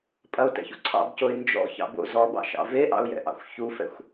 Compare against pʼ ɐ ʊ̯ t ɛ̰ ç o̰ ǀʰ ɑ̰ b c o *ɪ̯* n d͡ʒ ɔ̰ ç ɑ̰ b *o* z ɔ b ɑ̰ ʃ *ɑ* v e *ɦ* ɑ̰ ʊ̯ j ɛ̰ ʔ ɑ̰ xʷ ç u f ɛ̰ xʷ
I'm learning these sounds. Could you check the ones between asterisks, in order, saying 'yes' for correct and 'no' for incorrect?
yes, no, no, no

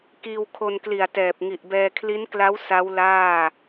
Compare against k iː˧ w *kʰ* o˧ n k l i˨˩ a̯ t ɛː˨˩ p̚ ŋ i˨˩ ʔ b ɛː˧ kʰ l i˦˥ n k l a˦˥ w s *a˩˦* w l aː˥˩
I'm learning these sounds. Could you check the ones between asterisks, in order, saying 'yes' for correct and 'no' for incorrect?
yes, no

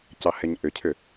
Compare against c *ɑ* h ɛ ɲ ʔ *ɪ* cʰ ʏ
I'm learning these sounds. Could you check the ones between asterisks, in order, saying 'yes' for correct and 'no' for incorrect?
yes, no

